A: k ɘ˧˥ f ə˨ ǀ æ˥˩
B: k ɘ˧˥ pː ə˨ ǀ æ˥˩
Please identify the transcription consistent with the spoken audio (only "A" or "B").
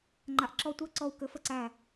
A